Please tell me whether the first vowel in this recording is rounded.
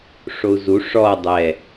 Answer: yes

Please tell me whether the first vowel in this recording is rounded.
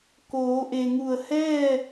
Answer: yes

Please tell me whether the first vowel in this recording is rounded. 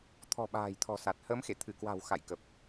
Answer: yes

